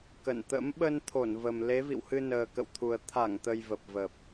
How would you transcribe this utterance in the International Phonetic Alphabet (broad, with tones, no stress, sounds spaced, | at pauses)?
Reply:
k ə̰˧˨ n t̪ ə̰˧˥ m ɓ ə˧ n t̪ʰ o˧˩ n v ə˨˩ m l e˨˦ v ḭ˧˨ w h ɨ˧ n əː˨˩ k ə̰˧˨ w t̪ʰ u˨˩ ə̯ t̪ʰ a˧˩ ŋ t̪ ə˨˩ j v ə˨˩ p̚ v ə˨˩ p̚